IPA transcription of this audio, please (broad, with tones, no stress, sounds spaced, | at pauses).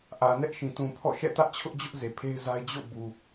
ʔ ä˨ n ɛ˦ ʔ ʃ ĩ˨ t ũ˨ pʰ ɔ̰˦˨ ʃ ɛ̰˦˨ t ä˦ ʔ t͡ɕʰ ʊ˦ ʔ d͡ʑ ʊ˦ ʔ z e˨ pʰ e˦ ɪ̯ z a˦ ɪ̯ d͡ʑ o̰˦˨ b u˨